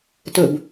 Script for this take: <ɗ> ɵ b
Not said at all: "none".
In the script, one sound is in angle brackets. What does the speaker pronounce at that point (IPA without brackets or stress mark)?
t